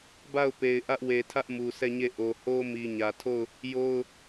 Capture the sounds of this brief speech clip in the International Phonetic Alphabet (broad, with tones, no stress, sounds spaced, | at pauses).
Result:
b a˦˨ ʊ̯ p e˨ ɪ̯ ʔ ä˦ ʔ w e˨ tʰ ä˦ ʔ m u˨ sʰ ɛ˦˨ ɲ e˦˨ ʔ o˨ h o˦ m i˨ ɲ ä˨ tʰ o˦˨ ʊ̯ | j o˦ ʊ̯